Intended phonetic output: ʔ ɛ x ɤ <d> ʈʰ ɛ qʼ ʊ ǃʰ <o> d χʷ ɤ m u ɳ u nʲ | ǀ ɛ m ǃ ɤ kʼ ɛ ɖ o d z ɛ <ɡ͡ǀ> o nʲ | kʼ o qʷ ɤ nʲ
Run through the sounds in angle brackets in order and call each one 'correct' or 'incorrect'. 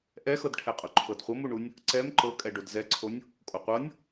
correct, incorrect: ɤ, incorrect: ǀʰ

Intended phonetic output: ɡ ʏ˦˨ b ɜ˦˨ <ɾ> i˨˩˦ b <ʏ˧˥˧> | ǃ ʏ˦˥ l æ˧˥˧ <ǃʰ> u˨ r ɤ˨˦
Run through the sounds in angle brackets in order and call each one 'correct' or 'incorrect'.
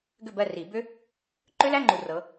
incorrect: r, incorrect: ʏ˦˥, incorrect: ŋ͡ǃ

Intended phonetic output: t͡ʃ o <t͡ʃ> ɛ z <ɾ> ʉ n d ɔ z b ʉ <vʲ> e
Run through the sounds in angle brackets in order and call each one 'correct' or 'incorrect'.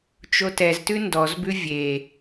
incorrect: t, incorrect: t, correct

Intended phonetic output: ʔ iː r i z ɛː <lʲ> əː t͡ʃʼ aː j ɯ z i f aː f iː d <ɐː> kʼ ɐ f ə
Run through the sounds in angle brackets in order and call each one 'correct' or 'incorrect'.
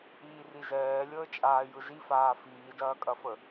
correct, correct

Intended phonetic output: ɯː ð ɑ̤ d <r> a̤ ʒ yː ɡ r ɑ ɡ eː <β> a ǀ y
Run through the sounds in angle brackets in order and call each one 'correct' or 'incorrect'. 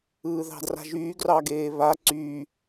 correct, correct

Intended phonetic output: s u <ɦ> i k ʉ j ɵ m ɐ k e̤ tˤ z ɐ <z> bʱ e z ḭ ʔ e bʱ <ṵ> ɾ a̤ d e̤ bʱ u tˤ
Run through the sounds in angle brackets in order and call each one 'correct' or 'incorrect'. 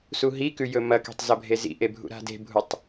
correct, incorrect: none, correct

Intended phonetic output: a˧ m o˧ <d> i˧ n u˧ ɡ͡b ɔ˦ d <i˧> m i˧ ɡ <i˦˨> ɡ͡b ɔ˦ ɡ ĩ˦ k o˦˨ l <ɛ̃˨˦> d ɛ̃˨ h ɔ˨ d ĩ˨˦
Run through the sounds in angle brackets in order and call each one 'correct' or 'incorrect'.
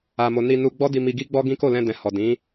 incorrect: n, correct, incorrect: i˦, incorrect: ɛ̃˧

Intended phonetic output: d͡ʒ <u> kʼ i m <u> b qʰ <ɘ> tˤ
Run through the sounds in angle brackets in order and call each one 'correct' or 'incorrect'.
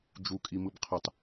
correct, incorrect: ɯ, correct

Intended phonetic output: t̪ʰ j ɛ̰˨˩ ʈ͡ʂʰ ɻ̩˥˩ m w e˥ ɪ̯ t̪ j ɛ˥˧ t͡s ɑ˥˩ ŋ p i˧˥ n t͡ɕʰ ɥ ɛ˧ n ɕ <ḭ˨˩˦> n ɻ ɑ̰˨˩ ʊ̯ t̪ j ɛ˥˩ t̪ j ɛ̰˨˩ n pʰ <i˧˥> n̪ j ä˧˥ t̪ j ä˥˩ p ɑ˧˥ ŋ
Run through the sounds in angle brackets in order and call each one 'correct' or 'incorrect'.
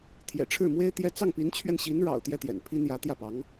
incorrect: i˧˥, incorrect: i˥

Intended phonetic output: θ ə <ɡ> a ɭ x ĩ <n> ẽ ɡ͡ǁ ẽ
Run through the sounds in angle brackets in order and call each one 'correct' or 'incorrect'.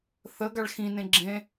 correct, correct

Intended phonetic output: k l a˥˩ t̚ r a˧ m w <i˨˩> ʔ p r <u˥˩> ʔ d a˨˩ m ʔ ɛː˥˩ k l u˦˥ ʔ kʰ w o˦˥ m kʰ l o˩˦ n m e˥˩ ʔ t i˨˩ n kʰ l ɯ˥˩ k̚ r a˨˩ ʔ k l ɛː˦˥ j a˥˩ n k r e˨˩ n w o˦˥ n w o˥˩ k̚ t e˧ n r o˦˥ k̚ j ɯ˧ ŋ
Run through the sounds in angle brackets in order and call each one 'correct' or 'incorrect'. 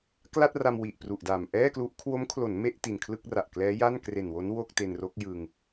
correct, incorrect: u˨˩

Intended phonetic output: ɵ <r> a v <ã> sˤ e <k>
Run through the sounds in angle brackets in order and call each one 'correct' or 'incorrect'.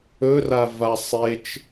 correct, incorrect: a, incorrect: t͡ʃ

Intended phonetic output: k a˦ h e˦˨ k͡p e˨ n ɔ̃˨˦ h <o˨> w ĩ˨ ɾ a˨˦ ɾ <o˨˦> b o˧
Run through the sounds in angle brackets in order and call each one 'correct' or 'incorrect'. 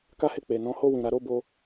incorrect: o˦˨, incorrect: o˦˨

